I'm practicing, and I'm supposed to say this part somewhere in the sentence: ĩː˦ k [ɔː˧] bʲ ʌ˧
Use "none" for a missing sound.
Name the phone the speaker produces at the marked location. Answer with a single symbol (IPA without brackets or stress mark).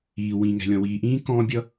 ɔ̃ː˧